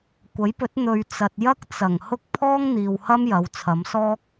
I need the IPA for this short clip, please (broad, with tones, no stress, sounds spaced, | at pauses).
kʷ ɐ˨˥ j p ɵ˨˥ t̚ n̪ ɵ˨ ɥ t͡s ɐ˨ t̚ j ɐ˥ k̚ t͡s ɐ˨˩ ŋ h ʊ˥ k̚ pʰ ɔː˥ ŋ n̪ iː˨ w h ɐ˥ m j ɐ˨˧ w t͡sʰ ɐ˨˧ m s ɔː˥ k̚